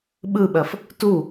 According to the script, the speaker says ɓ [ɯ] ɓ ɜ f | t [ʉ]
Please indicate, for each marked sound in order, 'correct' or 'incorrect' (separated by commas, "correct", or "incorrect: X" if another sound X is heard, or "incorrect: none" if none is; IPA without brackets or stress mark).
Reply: correct, incorrect: u